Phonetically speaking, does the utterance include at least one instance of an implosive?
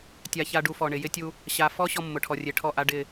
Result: no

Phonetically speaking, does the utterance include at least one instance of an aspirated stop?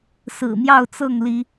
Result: no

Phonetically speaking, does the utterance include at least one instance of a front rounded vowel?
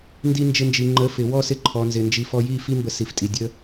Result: no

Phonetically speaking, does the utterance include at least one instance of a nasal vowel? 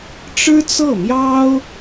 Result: no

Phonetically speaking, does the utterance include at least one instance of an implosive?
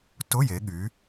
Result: yes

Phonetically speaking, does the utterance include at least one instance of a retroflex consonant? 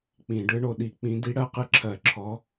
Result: yes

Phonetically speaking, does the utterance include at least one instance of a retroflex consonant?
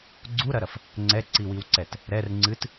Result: no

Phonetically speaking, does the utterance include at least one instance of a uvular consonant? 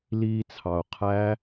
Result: yes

